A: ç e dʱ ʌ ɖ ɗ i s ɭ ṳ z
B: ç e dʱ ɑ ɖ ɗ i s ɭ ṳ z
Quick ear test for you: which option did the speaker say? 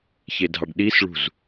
B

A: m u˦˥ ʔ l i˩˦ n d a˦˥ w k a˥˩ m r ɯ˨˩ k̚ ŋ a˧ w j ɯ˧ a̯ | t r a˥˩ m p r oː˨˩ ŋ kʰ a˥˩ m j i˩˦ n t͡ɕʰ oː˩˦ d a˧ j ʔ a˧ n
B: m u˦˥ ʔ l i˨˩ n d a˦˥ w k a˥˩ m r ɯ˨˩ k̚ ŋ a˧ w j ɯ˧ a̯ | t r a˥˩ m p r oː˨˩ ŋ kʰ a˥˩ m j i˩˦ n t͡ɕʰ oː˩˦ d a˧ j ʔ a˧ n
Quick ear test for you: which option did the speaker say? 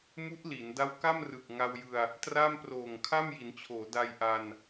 A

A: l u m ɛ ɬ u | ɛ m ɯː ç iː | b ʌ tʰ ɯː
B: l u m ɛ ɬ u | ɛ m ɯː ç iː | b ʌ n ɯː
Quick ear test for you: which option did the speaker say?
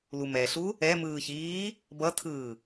A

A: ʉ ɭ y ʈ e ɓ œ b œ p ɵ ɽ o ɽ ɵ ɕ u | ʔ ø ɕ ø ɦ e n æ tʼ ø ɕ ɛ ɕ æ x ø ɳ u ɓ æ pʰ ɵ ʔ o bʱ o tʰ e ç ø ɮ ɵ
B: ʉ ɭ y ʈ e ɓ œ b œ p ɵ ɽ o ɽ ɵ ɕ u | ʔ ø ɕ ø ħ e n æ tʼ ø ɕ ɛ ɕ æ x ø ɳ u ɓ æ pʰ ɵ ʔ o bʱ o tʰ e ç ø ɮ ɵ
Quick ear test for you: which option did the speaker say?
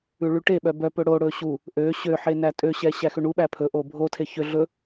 B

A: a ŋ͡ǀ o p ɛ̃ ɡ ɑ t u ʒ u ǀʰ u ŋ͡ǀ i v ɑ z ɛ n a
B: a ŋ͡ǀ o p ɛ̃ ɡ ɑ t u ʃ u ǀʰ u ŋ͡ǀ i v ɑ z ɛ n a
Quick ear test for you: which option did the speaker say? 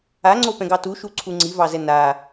B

